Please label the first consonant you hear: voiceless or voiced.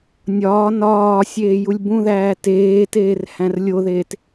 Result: voiced